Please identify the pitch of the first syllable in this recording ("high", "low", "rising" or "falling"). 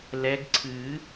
rising